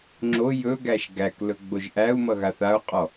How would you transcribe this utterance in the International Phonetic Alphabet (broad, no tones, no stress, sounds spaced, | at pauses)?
ŋ͡ǁ o j ɵ ɡ æ ʃ ɡ æ k l ɵ ɡ͡b o ʒ ʔ æ u̯ m ʌ ɣ a θ a u̯ qʼ ɔ